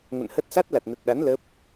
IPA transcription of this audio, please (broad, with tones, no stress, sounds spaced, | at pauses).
ŋ ə̰˧˨ n h ə˦˥ t̚ s a˦˥ t̚ l a˨˩ t̚ n ə˨˩ t̚ ɗ a˨˦ n l ə˦˥ p̚